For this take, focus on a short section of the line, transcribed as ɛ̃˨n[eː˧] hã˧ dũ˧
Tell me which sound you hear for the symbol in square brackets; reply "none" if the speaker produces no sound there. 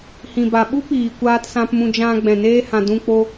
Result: eː˧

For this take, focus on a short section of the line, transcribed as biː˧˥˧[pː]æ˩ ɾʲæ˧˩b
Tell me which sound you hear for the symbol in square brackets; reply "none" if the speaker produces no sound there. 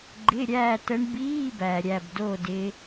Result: b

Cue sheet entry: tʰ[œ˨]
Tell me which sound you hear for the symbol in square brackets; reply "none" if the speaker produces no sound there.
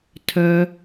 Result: œ˨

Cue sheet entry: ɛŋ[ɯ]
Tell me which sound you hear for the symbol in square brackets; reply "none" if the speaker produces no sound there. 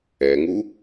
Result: u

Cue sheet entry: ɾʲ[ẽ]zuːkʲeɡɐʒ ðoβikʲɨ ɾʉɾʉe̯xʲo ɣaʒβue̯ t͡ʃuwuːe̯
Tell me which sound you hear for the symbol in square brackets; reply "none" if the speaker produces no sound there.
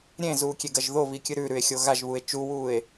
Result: ẽ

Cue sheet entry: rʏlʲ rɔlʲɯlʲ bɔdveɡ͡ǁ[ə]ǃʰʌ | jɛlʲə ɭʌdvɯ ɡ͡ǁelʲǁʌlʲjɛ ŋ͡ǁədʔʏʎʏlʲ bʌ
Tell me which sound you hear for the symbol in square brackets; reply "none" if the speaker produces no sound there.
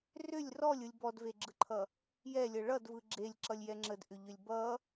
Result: ɯ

